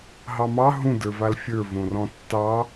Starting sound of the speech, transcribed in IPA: ɦ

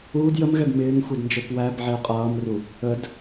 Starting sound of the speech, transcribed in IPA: uː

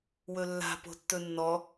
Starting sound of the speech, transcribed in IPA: w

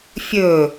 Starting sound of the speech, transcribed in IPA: fʲ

